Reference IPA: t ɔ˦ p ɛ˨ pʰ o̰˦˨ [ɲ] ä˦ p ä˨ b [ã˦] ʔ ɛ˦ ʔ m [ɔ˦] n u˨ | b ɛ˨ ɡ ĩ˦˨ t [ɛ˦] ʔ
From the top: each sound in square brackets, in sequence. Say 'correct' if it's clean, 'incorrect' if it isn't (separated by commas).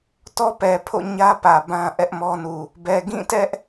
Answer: correct, correct, correct, correct